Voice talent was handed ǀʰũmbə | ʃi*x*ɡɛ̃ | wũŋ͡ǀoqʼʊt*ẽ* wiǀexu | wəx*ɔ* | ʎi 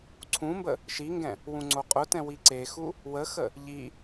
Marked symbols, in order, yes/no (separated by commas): no, no, no